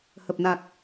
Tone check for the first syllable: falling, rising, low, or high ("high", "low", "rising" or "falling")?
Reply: low